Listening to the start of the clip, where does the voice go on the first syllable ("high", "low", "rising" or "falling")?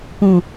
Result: low